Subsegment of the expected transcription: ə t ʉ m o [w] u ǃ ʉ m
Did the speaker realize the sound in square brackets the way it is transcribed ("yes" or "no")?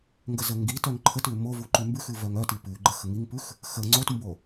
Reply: no